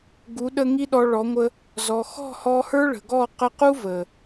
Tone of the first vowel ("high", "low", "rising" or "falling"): rising